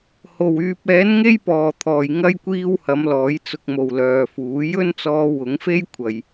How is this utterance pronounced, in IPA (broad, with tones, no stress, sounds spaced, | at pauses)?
h o˨˩ w yː˨ p̚ ɛː˨˥ n ŋ e˥ j p ɔː˨˩ t̪ʰ ɔː˨˩ j ŋ ɐ˥ j kʷ iː˥ w h ɐ˨˥ m l ɔː˨˥ j t͡s ʊ˨ k̚ m o˨˩ w l œː˨ f uː˨˥ j ɵ˥ n t͡s ɔː˧ w ʊ˨˥ ŋ f e˥ j kʷʰ ɐ˨ j